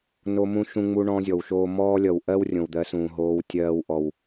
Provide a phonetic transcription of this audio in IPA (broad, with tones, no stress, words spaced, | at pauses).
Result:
no˦mũ˦ ʃũ˦ŋ͡mu˦ɳɔ̃˦ zʲɔ˨wʃoː˧ mɔː˦lʲʌ˨w ʔɜ˦wrʲõ˨w d̪ɜ˨˦sũː˨ɦoː˧w tʲɜː˧wʔɔ˨w